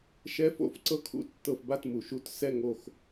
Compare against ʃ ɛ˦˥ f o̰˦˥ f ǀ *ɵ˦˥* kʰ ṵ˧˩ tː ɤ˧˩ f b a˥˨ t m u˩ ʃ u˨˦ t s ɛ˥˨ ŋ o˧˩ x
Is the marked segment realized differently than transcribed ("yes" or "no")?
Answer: yes